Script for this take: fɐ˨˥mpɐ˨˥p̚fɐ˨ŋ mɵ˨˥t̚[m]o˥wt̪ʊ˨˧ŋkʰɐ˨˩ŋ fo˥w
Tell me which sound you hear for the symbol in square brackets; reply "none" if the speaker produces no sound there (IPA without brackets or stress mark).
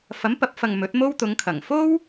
m